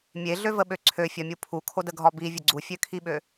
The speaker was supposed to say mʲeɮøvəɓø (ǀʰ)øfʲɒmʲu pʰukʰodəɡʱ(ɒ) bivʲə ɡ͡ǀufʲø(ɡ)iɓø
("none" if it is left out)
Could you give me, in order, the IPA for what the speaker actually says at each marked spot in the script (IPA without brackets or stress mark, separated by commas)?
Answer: ǀʰ, ɒ, kʰ